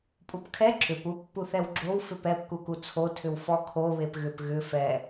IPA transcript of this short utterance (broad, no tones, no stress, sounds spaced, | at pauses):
pʼ u p kʰ ɛ ǁ ʏ p u pː u θ ɛ w ɡ͡ǁ o w f ʏ p ɛ p k u k u t͡sʰ o tʰ ʏ w f ɔ kʰ o β e p ɣ ʏ p ɣ ʏ f ɛ